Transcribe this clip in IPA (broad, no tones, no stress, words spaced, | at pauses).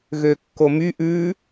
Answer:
ɣøkːomy ʔʉ